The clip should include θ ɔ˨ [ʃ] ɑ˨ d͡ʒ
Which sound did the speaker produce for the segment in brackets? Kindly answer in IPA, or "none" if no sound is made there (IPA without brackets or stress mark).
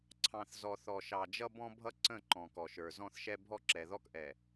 ʃ